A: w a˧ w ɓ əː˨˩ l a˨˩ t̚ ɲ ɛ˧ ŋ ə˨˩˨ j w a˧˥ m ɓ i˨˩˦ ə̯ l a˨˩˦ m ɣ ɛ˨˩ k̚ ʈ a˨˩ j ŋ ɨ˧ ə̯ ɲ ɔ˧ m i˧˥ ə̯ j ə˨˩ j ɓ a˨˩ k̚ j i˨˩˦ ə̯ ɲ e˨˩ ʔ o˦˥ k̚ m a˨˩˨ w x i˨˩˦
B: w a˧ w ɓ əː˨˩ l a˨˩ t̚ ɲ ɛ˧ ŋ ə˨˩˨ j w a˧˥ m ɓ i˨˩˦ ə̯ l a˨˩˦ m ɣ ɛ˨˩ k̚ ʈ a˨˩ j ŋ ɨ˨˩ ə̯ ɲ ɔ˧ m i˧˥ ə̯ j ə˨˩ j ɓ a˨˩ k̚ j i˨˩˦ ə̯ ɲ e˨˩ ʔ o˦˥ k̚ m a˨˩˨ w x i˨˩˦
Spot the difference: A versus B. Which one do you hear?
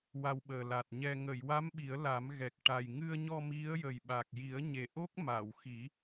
A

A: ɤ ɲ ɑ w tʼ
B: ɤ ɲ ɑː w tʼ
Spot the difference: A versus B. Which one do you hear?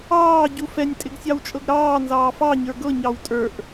A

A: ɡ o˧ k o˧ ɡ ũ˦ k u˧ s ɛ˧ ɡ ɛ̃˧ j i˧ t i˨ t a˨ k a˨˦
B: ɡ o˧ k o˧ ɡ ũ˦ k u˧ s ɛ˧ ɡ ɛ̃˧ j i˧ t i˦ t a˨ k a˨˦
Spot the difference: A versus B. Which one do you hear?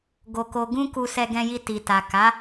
A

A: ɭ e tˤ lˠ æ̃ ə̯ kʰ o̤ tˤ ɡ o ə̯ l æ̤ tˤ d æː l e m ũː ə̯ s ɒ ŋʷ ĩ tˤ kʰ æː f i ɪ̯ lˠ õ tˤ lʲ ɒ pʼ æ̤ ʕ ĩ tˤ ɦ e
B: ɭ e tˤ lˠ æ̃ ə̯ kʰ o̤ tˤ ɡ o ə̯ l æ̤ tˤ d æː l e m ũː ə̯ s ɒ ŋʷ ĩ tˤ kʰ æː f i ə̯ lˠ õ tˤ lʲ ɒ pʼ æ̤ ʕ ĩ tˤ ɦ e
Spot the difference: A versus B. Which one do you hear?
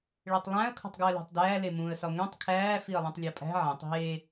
B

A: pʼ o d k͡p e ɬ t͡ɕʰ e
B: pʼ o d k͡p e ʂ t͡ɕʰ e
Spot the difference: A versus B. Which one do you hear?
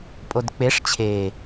B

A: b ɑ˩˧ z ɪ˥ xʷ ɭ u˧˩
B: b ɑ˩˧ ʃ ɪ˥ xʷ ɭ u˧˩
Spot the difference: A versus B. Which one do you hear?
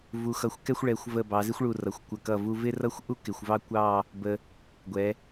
A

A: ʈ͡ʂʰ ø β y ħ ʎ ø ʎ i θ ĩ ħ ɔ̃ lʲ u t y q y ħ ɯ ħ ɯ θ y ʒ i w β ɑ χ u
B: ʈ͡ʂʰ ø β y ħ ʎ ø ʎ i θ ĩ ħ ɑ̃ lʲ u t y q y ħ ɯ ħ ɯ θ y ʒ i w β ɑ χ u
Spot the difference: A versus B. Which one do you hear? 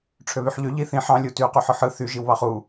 B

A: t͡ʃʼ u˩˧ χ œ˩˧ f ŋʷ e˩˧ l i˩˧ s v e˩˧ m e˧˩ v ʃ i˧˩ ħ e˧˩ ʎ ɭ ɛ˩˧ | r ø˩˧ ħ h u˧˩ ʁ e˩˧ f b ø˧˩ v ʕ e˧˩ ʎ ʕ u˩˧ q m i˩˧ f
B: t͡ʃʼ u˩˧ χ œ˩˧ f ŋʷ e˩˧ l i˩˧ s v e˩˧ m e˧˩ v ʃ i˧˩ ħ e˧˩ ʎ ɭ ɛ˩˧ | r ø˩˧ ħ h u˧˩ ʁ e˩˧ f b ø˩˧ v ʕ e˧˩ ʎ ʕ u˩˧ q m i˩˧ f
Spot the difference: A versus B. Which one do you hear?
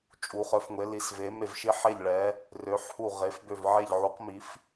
A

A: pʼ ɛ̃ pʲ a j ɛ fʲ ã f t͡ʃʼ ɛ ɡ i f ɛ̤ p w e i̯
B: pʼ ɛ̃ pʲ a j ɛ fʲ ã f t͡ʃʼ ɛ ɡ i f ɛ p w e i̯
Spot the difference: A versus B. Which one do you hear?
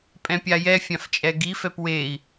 B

